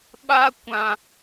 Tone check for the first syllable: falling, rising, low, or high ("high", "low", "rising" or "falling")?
high